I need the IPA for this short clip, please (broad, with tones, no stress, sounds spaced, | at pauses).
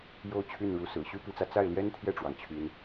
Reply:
j o˥˧ ʊ̯ t͡ɕʰ y˥˩ n ɻ u˧˥ s ɹ̩˨˩ ɕ y˥ p i˧˥ t͡s ä˧ t͡s a˥˩ ɪ̯ l j ɛ˥ n t̪ʰ j ɛ˥˩ ʈ͡ʂ w ɑ˩ ŋ t͡ɕʰ y˧˥ n